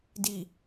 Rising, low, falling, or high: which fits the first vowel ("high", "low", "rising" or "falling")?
low